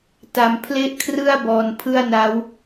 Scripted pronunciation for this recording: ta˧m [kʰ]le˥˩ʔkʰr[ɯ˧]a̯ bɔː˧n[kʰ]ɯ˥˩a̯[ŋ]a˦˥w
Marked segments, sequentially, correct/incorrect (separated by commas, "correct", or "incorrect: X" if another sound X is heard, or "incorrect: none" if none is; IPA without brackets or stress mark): incorrect: pʰ, incorrect: ɯ˥˩, incorrect: pʰ, incorrect: n